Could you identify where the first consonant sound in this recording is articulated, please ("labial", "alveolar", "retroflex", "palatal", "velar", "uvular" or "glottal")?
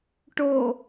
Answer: retroflex